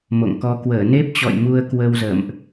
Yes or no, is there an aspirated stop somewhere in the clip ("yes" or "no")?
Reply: no